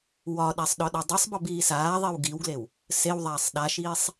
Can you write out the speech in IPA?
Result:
wɒɗasˤ ɗɒɗɒdˤesˤbɒb iːsaːðˤiw ɡiwɡlew | sewðˤaːsˤ ɗaʃiːsˤ

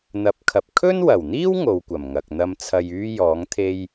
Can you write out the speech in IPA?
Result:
n̪ɐ˨˥p̚kʰɐ˨p̚ kʰɵ˥nwɐ˨˩wn̪iː˥w ŋo˨˧wkʷɐ˨˩mŋɐ˨k̚ n̪ɐ˧m t͡sʰɐ˧jyː˥ jɔː˨˥ŋ t̪ʰe˥j

